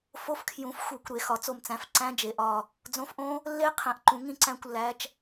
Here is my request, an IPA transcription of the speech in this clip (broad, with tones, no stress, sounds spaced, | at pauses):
f o˦˥ f kʰ j ũ˨˦ f xʷ e˨˩˦ kʷ ɾ e˨˩˦ x ɒ˨˩˦ t͡s o˦˨ m t͡s æ̃˨˦ f ǀ æ̃˦˥ d͡ʒ e˨˩ ʔ ɒ˦˨ | d͡z õ˨˦ f ʔ õ˦˥ | lː e˦˥ qʰ ẽ˨˩ ʔ ǃ ũ˨˩˦ ŋ ĩ˦˨ ǀ æ̃˦˨ kʷ lː æ˨˦ t͡ʃ